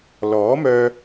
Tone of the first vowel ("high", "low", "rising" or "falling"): rising